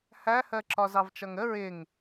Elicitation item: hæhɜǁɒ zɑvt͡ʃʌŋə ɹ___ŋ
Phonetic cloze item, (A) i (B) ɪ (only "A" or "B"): B